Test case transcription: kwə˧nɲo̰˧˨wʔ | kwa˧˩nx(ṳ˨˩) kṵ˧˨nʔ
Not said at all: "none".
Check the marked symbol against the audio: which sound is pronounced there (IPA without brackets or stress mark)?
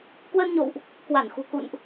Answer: ṳ˨˩